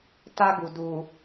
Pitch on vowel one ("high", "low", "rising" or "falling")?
high